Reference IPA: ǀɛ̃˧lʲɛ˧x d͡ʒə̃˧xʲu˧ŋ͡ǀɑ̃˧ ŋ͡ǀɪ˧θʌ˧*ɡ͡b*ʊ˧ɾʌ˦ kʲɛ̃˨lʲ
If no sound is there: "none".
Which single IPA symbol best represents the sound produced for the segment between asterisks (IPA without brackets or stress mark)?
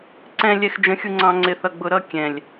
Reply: ɡ͡b